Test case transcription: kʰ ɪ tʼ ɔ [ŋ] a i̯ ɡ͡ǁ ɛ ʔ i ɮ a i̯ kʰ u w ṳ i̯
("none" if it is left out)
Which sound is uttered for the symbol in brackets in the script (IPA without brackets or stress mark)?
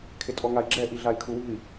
ŋ